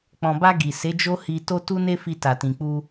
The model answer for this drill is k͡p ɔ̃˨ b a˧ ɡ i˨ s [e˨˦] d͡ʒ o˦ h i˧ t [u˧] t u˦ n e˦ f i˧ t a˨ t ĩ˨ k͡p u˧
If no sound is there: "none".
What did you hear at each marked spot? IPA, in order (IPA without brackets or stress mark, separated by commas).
e˨˦, o˧